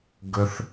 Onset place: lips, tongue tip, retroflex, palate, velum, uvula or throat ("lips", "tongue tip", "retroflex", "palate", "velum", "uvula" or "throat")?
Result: velum